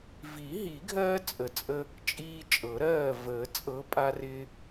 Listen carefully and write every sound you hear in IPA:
v i˨˩˦ ɦ i˨˩˦ ɡʱ ɜː˦ t͡sʼ ə˨ t͡sʼ ə˦ | t͡ʃʼ iː˦ t͡ʃʼ ɤ˨˩˦ ɾ ɜː˥˨ v əː˨˩˦ t͡sʼ ɤ˨˦ pʼ a˦ r ɪː˦

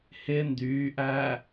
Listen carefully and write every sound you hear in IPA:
h ɪ n d yː ʔ æː

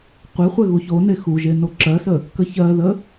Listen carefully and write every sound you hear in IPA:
qʷ e χʷ ɛ ɣ u ç o n e x u ʒ e n o ǁ ɜ s ə | k ə ç ɜ ð ə

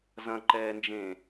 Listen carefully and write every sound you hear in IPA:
z ɐ̃ ǃ ɛː n d͡ʒ ẽ

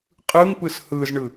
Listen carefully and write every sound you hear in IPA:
qʼ ɯ ŋ p ɯ s h ɯ z ɳ ɯ

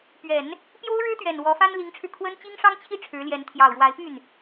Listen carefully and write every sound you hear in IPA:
p ɥ ɛ˨˩˦ n | p j o˥ ʊ̯ ɻ ɻ̩˥ t̪ ɥ ɛ˨˩ n w ɔ˧˥ f a˥ n l i˧˥ ŋ ʈ͡ʂʰ ɻ̩˧ kʰ w ə˥ n t͡ɕ i˥ ŋ ʂ ɑ˥ ŋ t͡ɕʰ i˥ ʈ͡ʂʰ ɻ̩˧˥ l j ɛ˧˥ n t̪ʰ j ɑ˨˩ ʊ̯ ɻ w a˧˥ ɪ̯ p y˥˩ n

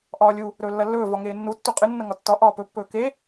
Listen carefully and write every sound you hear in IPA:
ʔ ɒː lʲ u | ɾ ɵː lː ɐ lː ɵː v ɒ ŋ eː nː u tː u qʼ ɨ nː ɐ ŋ ɒ tː ɒ ʔ ɒː p ɵ pː ɵː k e

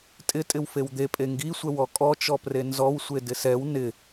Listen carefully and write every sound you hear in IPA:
tʼ ɪ tʼ ɪ w f e w d̪ e pʼ e ŋ ɡ i sʷ ɛ w ɔ kʼ ɔ t͡ʃ ɔ p r e n z ɔ w sʷ e d ɪ s ɛ w n ɪ

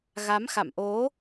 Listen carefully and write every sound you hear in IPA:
ɣ a˨˦ m x a̰˧˨ m ʔ o˨˦

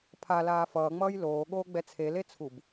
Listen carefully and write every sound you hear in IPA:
pʰ a l aː f ʌː ŋ͡m ʌː j l oː ɠ oː ɡ͡b ɛ t͡sʰ e l e t͡sʰ u b

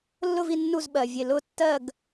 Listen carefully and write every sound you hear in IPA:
lː ʊ˥˨ v i˥˨ nː u˥˨ z ɓ ɜ˩ vʲ e˧˩ l ʊ˥˨ tː ɜ˥˨ ɡ

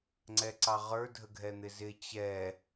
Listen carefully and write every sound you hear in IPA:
ŋ͡ǀ ɛ ǀ ɑ ʁ ə˞ dʱ ə ɡʱ ɛ n̪ ɪ z ɪ t͡ɕ ɛ

